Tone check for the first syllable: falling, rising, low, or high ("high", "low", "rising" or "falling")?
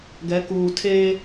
rising